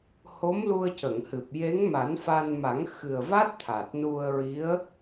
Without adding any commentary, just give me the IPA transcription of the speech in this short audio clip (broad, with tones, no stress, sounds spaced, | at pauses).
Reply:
h o˧˥ m l u˧ ə̯ c ə˨˩˨ ŋ h ɨ˨˩ p̚ j e˧˥ ŋ m a˨˩˦ n f a˧ n m a˨˩˦ ŋ x ɨ˨˩ ə̯ v a˦˥ t̚ t̪ʰ a˨˩ t̚ n u˧ ə̯ ɹ i˧˥ ə̯